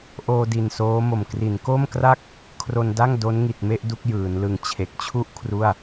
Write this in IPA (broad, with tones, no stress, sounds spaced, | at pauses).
ʔ oː˧ d i˨˩ n s oː˦˥ m o˨˩ m k r i˩˦ n k o˥˩ m k r a˥˩ k̚ | kʰ r o˧ n d a˥˩ ŋ d o˦˥ n ŋ i˨˩ t̚ m e˥˩ ʔ d u˥˩ k̚ j ɯː˩˦ n l ɯ˨˩ ŋ t͡ɕʰ e˨˩ k̚ t͡ɕʰ u˥˩ ʔ kʰ r u˥˩ a̯